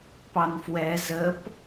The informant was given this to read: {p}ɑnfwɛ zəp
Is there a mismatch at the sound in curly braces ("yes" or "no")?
no